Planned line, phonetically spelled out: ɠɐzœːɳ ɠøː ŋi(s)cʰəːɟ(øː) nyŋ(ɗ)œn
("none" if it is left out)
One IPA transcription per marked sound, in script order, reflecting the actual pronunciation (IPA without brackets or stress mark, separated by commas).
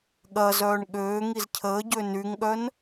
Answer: z, ø, ɠ